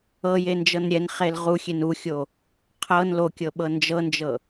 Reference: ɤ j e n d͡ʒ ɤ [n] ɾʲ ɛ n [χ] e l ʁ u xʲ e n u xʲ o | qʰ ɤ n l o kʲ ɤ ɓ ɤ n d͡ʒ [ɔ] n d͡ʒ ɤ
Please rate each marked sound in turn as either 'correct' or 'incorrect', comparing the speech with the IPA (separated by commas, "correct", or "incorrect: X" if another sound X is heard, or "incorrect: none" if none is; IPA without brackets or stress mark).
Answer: correct, correct, incorrect: ɤ